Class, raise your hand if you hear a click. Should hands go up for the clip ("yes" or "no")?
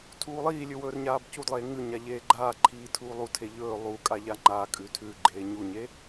yes